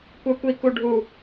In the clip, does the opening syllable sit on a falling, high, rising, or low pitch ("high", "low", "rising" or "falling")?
high